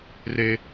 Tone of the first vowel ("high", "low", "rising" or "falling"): high